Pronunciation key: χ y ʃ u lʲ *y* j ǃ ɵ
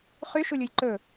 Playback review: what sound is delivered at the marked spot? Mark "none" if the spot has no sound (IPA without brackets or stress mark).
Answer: u